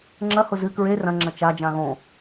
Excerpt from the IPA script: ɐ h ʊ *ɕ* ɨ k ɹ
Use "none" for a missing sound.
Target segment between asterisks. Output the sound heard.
z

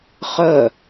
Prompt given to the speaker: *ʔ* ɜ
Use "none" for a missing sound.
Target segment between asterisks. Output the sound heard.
χ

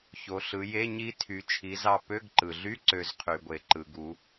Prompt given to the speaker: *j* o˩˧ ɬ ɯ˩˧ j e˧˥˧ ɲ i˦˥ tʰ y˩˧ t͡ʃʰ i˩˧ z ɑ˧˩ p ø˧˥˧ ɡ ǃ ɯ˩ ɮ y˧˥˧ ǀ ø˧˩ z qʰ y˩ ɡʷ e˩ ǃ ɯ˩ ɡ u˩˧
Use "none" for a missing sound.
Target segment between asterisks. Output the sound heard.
ç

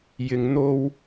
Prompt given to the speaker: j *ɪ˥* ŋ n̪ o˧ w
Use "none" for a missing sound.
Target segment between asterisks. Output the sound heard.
ɪ˨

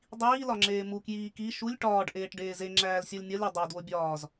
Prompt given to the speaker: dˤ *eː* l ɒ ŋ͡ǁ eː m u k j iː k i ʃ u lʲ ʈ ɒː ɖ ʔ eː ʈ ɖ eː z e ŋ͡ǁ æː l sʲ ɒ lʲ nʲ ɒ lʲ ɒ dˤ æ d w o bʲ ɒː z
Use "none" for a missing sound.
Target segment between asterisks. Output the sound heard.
iː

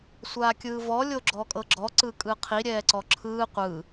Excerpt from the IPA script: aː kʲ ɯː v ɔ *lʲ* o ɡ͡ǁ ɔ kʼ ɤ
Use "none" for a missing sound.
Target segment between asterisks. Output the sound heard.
lʲ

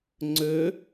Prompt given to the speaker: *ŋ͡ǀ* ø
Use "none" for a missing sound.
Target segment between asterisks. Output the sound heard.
ŋ͡ǀ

